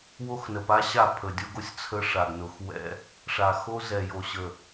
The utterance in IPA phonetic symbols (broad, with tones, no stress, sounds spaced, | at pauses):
w o˦ x n ə˨ p a˦ ɕ a˦˨ pʰ ə˨ dʲ o˦ ɡ o˦ sʲ t͡sʰ ə˦ ʂ a˨ ɡ n ʊ˨ x w ɛ̰˦ | ʂ a˨ x o˦ z ɛ˨ j o˨ ɕ ə˨